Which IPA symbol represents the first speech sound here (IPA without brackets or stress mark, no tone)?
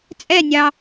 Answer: t͡sʼ